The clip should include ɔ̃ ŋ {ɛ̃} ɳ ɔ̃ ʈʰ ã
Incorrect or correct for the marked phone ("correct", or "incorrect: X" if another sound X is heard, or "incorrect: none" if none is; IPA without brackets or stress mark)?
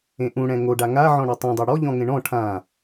incorrect: ẽ